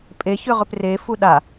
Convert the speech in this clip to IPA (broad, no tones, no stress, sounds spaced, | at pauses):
pʼ e ç ʏ ʁ ʏ p r e f u ɗ a